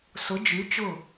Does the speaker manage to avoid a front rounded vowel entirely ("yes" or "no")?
no